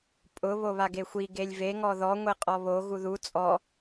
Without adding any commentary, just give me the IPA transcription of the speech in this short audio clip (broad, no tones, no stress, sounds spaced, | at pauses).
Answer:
pʼ ʊ β o β a ɡ e xʷ i ɡ e lʲ v e ŋ ɔ ð ɔ ŋʷ e qʼ ɔ β o ɣ u ð u t͡sʼ ɔ